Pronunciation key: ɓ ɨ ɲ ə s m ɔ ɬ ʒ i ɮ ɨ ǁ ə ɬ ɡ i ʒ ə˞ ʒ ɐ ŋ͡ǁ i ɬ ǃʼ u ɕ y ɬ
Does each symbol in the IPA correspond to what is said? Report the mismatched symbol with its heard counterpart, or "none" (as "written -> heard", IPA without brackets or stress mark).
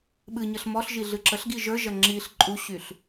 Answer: s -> ɬ